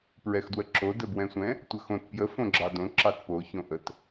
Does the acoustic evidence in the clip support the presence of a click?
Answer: yes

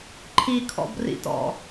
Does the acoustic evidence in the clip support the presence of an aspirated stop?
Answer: yes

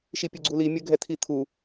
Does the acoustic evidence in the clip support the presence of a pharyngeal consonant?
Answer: no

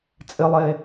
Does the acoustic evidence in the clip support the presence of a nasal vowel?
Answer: no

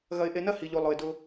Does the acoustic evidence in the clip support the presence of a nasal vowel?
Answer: no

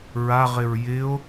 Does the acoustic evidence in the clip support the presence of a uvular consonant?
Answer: yes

